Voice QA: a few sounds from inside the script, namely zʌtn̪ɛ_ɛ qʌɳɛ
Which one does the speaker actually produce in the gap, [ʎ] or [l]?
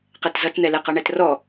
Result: l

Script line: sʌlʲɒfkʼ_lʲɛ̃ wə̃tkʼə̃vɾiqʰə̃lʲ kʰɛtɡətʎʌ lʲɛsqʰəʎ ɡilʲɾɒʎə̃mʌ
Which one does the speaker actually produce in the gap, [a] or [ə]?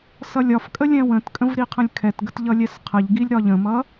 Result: ə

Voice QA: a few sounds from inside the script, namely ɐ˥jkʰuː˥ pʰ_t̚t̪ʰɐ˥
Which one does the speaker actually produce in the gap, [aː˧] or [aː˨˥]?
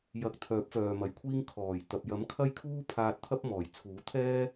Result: aː˧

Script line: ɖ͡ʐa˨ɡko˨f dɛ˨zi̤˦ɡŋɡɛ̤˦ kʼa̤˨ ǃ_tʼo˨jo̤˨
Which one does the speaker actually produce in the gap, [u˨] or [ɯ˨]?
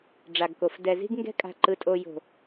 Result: ɯ˨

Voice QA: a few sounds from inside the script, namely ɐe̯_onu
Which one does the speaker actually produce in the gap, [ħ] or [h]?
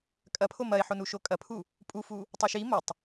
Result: ħ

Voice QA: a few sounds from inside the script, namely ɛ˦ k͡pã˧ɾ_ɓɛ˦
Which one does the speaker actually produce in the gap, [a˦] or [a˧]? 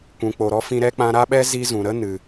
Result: a˦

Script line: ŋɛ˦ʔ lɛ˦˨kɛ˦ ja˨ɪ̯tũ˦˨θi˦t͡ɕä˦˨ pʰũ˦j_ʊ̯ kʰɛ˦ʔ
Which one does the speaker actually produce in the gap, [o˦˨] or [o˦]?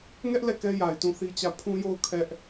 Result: o˦˨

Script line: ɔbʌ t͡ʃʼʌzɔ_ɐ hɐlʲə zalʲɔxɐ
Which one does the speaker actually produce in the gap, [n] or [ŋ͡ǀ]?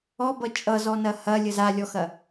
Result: n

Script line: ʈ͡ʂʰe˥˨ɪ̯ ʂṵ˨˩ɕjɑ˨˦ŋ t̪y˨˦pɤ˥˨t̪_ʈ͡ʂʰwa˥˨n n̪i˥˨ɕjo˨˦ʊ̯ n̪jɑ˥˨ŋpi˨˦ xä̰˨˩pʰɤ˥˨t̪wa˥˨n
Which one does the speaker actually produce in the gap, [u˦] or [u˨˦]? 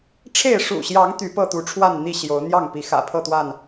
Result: u˨˦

